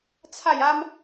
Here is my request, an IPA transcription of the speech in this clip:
t͡sʰ a˥˧ j a˦ m

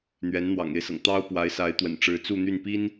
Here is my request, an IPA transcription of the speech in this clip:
n̪ ɥ ɛ˧˥ n n̪ w ɑ̰˨˩ ŋ e˥˩ ɪ̯ s ɤ̰˨˩ ŋ t̪ ɑ˥ ʊ̯ p w a˧˥ ɪ̯ s a˧˥ ɪ̯ t̪ w ə̰˨˩ n ʈ͡ʂ ɻ̩˧˥ t͡s u˥˧ n̪ y˥˩ n p i˥ n

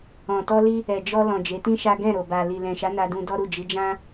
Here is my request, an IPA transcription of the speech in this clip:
ɔ̃˨ t ɔ˧ l i˧ | ɛ˨ d͡ʒ ɔ˧ l ɔ̃˨ d͡ʒ e˨˦ t ĩ˦ ʃ a˦ ɡ ɛ̃˦˨ ɾ o˨ b a˨ l i˨ l ɛ̃˨ ʃ a˨˦ n a˧ d ũ˧ d ɔ˦ ɾ u˦˨ d͡ʒ i˨˦ d͡ʒ ã˦

